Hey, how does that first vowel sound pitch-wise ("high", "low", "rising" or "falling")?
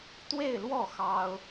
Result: falling